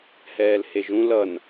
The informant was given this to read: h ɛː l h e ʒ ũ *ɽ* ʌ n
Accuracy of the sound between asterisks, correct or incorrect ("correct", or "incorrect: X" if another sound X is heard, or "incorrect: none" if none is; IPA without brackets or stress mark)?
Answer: incorrect: l